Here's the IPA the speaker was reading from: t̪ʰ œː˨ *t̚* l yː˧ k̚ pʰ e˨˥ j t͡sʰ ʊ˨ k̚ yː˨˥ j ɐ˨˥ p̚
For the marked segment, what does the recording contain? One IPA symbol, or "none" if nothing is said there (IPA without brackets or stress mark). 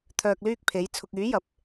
k̚